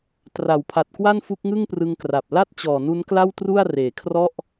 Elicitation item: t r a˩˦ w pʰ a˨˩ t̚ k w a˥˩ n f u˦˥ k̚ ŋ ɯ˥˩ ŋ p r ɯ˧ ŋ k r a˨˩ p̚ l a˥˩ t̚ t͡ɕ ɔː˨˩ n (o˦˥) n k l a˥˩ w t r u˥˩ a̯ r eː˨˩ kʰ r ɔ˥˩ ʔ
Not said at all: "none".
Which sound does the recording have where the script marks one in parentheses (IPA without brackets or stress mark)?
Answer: u˦˥